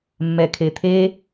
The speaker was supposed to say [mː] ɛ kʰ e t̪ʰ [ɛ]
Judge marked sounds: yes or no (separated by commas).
yes, no